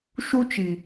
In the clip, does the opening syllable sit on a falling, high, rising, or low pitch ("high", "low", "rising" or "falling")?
high